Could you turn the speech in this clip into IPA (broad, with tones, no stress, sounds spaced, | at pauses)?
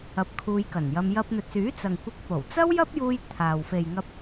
ɐ˧ p̚ kʰ uː˧ j k ɐ˨˩ n j ɐ˧ m j ɐ˧ p̚ n̪ ɵ˨ t̚ s yː˨˥ t͡s ɐ˨ ŋ kʷ ɪ˧ k̚ p o˨˩ w t͡s ɐ˥ w j ɐ˥ p̚ j uː˧ j t̪ʰ aː˨ w f e˨ j ŋ ɐ˧ p̚